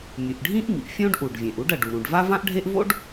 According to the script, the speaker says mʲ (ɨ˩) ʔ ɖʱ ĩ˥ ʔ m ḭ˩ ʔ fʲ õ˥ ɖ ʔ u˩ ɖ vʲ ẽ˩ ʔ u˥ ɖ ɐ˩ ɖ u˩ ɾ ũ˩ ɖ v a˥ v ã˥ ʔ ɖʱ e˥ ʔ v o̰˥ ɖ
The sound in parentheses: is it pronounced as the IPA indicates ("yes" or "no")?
yes